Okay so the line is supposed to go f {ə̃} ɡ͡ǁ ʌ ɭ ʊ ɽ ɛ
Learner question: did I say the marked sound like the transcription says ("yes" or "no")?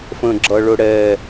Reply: yes